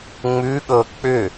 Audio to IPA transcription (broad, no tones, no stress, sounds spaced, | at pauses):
ŋ͡m ʉ ɠ ɤ k͡p ʏ